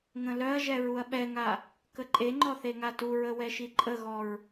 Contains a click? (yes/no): yes